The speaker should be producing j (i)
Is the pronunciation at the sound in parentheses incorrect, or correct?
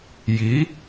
correct